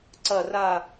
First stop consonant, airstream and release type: click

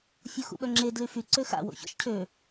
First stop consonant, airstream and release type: implosive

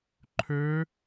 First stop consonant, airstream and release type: click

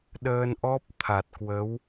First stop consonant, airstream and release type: implosive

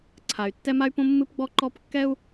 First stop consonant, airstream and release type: click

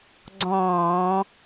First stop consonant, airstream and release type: click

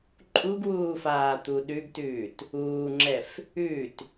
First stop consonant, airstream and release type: click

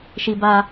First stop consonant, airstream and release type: plain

